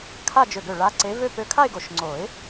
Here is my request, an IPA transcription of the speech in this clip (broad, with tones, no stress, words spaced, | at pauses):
kʰa˥˧d͡ʒø˧˩ɡø˧˩ ɭa˨˦ǀe˨˦vø˥˧ pø˧˩kʰa˥˧ɪ̯ɡo˨˩˦ʃ ŋ͡ǀo˨˩˦ɪ̯